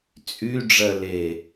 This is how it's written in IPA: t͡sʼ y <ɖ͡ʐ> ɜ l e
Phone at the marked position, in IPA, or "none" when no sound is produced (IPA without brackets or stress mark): ɖ͡ʐ